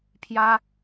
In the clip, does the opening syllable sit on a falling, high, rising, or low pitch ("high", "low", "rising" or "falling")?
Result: high